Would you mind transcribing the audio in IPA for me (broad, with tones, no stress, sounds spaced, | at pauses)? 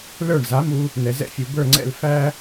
l ə˞˥˩ ɳ z a˩˥ m u˧ | n ɛ˩ z ɛ̰˥ fʲ u˩ b ə˞˥˩ ŋ͡ǀ ɛ̰˥˩ l f æ˥